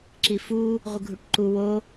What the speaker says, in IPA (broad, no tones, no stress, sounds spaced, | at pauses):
ǁ i f u | ʁʷ ɨ ɡʱ u ʈ ǃ u w o